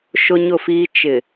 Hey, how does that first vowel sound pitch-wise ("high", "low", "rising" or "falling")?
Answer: high